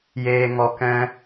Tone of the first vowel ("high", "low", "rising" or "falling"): low